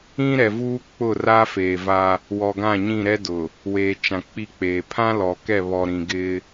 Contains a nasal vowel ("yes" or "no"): yes